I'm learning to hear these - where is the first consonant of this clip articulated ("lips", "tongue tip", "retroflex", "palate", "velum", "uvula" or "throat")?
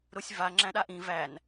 tongue tip